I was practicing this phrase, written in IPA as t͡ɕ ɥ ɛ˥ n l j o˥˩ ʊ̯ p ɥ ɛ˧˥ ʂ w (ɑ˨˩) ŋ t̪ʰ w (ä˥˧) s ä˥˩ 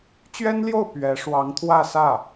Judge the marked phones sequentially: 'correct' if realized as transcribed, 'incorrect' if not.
incorrect: ɑ˧˥, correct

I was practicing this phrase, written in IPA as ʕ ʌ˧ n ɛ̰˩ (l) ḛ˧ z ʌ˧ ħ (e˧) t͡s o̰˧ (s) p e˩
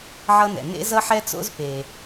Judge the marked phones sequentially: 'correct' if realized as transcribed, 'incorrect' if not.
incorrect: n, incorrect: ɛ˧, incorrect: z

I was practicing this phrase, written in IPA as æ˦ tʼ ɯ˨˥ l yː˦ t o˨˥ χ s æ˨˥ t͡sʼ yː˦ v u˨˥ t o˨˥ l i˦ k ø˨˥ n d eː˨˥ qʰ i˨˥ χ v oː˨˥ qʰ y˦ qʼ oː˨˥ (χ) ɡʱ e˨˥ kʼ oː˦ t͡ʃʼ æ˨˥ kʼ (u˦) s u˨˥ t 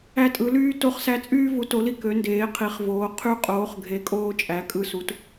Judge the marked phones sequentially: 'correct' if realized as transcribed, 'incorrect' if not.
correct, incorrect: ɯ˦

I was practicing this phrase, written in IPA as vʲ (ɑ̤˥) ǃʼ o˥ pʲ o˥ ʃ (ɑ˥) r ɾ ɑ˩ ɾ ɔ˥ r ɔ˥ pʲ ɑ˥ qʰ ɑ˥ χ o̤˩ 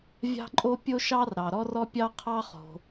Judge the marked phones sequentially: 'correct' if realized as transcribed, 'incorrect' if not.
correct, correct

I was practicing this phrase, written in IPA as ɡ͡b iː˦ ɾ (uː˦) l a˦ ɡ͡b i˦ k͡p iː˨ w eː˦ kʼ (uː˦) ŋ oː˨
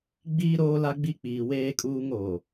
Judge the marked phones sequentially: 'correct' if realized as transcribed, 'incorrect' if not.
incorrect: oː˦, correct

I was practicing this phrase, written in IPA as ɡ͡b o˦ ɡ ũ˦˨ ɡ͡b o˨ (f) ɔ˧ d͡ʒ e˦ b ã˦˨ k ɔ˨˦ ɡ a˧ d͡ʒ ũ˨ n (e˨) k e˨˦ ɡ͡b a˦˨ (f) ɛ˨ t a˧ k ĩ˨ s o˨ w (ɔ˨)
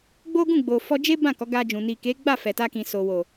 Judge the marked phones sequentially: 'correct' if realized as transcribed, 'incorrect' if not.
correct, incorrect: i˨, correct, incorrect: o˨

